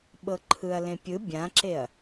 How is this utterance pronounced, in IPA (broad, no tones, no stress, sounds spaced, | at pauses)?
ɓ ɤ ǃʰ ɯ ɐ̯ l ẽ pʲ ɯ bʲ ã ǁ e ɐ̯